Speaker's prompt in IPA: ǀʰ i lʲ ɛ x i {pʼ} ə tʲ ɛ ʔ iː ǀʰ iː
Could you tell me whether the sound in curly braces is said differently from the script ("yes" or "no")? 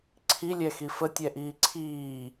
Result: yes